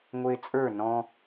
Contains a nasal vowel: yes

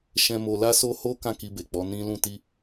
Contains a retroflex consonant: no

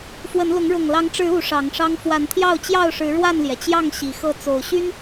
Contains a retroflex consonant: yes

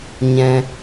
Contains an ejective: no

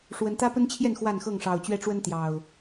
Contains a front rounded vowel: no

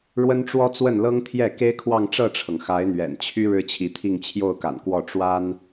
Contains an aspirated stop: yes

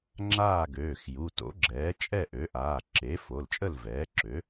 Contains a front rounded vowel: yes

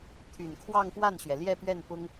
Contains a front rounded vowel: yes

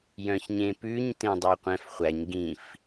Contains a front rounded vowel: yes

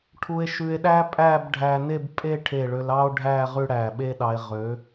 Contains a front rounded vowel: yes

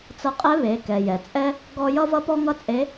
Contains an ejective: yes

